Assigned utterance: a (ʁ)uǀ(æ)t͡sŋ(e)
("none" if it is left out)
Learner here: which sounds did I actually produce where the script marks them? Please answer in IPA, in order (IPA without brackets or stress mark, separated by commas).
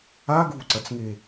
ɡ, ɐ, e